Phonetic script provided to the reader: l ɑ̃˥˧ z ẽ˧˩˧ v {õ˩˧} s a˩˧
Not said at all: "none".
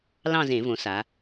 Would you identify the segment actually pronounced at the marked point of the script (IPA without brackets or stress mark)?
õ˩˧